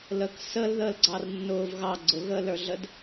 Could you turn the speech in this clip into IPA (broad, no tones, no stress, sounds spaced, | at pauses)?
l ə k s ə l ð əː l ɡ͡ǀ ɑ r nː ʊː v ɣ ɑ ɡ͡ǀ ʊ ɣ əː l ə˞ ɮ ə d